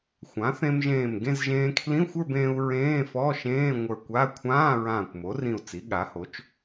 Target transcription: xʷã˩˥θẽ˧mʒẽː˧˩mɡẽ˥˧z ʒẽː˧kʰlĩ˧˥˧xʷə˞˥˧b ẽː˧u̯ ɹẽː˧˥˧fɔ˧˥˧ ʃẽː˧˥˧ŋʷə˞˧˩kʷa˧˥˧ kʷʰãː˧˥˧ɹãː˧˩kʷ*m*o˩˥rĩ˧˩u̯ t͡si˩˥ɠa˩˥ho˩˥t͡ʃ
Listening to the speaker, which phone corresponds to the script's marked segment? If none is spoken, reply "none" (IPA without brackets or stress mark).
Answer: m